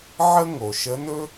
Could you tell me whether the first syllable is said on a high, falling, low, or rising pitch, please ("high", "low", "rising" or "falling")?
high